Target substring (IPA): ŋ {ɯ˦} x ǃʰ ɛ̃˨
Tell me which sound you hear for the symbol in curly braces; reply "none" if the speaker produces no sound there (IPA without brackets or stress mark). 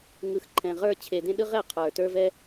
ɯ˨